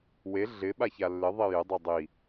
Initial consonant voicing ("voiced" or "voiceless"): voiced